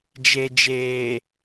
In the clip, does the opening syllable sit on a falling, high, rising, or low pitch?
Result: low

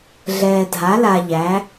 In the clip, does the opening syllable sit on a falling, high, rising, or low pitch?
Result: low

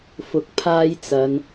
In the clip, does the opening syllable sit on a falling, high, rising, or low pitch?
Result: rising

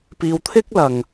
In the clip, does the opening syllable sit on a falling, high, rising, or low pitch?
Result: low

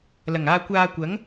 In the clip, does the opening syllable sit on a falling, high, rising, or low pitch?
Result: low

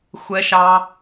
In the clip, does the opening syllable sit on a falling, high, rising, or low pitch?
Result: high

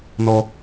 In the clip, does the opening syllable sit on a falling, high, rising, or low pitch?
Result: high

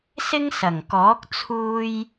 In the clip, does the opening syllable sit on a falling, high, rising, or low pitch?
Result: high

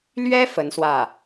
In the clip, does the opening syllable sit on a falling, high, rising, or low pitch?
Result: high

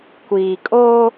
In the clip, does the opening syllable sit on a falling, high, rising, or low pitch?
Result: low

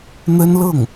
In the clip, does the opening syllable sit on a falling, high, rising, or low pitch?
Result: high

